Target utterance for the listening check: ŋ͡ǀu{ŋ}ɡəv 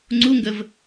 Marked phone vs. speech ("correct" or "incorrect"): correct